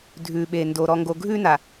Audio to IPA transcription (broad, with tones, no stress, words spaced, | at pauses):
dʱʉ˨ɓe˨ndo˨ ɾɔ˨ŋɡo˨ɡʱʉ˦na˨